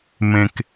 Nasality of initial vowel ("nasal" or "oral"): nasal